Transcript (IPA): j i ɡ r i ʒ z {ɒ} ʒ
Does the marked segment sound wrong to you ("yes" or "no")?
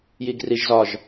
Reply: no